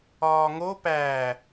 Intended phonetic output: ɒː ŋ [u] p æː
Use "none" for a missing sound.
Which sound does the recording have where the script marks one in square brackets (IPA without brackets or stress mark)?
o